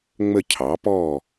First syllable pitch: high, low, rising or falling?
falling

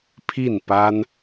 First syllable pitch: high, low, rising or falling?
falling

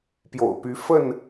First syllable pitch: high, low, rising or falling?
low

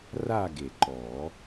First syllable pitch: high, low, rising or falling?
falling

